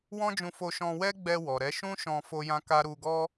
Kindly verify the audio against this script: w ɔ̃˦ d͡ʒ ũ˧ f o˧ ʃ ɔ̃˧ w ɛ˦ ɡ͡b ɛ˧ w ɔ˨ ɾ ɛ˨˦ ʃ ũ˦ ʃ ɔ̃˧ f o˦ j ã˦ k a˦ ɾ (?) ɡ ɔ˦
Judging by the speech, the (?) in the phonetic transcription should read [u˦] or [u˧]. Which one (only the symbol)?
u˧